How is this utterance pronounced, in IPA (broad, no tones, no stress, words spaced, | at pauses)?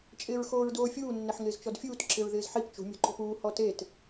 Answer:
t͡ʃʼɪːɹxoːɹdoːfʲuː nːɪħŋɪːzt͡ʃɔdfʲuːt ǁɪɹðɪːzħip t͡ʃṳ mʲo̤ǃo̤puː hɔtet